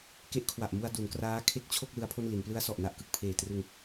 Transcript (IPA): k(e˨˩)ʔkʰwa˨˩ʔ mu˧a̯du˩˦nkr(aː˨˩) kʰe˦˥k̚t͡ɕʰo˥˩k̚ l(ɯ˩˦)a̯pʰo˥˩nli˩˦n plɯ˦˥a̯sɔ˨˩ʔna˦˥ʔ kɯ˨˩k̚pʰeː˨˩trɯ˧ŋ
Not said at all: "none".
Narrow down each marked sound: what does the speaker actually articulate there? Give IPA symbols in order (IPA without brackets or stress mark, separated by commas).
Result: e˦˥, aː˦˥, ɯ˦˥